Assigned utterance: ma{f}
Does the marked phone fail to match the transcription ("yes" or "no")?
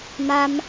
yes